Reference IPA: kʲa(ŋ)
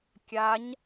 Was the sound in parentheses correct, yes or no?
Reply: no